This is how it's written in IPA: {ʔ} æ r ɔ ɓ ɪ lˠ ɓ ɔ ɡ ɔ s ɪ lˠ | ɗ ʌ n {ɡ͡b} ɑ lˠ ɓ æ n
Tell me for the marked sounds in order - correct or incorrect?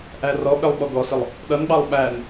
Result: correct, correct

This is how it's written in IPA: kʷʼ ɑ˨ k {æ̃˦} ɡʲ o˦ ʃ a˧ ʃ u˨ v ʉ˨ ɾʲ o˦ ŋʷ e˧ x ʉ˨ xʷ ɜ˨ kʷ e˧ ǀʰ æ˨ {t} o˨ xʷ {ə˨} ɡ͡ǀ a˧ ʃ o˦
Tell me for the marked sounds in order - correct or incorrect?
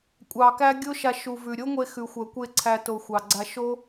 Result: incorrect: æ˦, correct, incorrect: ɑ˨

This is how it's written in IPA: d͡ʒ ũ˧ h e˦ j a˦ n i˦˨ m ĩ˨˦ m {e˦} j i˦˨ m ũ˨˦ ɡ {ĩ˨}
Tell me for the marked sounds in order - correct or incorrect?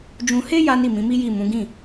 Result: incorrect: i˦, incorrect: ĩ˦˨

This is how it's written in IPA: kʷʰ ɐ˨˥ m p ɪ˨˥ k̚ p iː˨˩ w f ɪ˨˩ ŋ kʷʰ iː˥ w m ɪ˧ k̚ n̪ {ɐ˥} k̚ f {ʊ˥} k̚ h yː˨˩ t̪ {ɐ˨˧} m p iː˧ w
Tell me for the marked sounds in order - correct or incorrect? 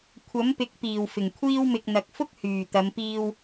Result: incorrect: ɐ˨, correct, correct

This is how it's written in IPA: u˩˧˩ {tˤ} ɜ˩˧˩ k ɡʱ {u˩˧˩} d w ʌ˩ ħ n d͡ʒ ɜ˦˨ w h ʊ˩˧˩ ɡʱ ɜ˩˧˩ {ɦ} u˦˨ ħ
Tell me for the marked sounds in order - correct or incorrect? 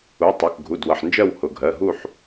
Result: correct, correct, correct

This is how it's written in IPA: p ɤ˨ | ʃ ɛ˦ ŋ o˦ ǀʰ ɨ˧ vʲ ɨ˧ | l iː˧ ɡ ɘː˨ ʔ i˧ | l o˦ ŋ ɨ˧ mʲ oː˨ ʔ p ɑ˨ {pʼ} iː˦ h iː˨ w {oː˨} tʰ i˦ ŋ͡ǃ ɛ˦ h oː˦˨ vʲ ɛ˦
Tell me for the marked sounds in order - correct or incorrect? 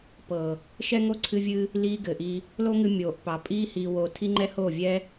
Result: correct, correct

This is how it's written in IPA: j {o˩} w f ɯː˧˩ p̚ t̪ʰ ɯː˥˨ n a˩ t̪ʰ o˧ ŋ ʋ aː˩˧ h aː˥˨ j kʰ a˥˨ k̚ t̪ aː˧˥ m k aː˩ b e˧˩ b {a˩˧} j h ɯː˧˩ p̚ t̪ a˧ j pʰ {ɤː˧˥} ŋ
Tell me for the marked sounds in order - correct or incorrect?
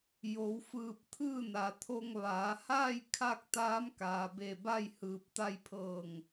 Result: incorrect: o˩˧, incorrect: a˥˨, incorrect: ɤː˧˩

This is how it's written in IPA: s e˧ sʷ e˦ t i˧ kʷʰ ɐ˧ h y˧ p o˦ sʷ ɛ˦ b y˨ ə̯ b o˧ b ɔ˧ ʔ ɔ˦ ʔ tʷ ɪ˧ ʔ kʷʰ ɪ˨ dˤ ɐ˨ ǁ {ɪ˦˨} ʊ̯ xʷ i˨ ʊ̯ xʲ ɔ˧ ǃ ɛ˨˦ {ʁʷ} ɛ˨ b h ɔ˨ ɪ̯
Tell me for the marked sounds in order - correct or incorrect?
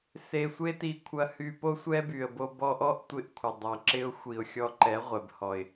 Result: incorrect: ɪ˧, correct

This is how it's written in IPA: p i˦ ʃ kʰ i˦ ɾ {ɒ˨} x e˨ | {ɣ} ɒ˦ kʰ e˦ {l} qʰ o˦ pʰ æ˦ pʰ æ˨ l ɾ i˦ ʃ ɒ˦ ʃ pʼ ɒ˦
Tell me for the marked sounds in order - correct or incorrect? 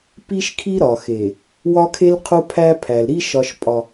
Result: correct, incorrect: w, correct

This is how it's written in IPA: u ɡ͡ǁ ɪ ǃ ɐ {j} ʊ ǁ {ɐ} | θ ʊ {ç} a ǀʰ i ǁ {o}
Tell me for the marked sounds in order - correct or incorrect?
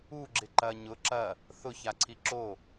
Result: incorrect: ɲ, correct, correct, correct

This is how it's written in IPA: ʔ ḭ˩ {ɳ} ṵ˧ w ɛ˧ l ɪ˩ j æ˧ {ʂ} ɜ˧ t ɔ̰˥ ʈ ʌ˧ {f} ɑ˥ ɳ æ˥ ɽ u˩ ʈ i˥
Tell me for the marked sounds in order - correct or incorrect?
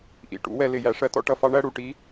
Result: incorrect: ʈ, correct, correct

